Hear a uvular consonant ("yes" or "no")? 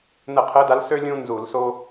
yes